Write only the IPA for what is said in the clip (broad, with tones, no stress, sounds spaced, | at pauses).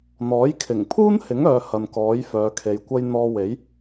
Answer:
n̪ ɔː˨˥ j kʰ ɪ˨˩ ŋ pʰ uː˥ n h ɪ˨˥ ŋ œː˧ h ɐ˨ n k ɔː˨˥ j f œː˨˧ kʰ e˨˧ j kʷ ɐ˥ j n̪ ɔː˧ w e˨˥ j